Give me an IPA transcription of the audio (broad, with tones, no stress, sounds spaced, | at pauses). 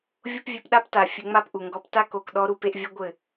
vʲ o˦ p vʲ e˧ p ɗ a˦ p t a˨ fʲ ɘ˧ ŋ͡m a˦ p ʔ u˨ ŋ ɡ ɔ˧ p t a˦ k o˨ k ɗ ɔ˧ ɾ u˧ p e˧ ʔ vʲ ɐ˦ ɡʷ ɘ˦˨